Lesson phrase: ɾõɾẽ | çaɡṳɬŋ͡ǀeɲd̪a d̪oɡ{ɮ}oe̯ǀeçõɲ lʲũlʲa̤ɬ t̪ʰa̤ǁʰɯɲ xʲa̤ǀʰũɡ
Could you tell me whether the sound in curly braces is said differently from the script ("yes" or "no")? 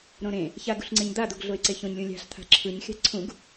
no